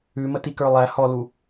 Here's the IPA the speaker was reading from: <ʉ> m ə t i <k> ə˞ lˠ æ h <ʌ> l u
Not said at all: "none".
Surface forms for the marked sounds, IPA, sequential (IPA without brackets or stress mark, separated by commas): ʉ, k, ɔ